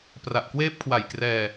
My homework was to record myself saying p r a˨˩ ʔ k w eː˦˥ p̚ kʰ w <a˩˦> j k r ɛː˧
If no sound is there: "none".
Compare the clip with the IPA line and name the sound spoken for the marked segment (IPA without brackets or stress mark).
a˨˩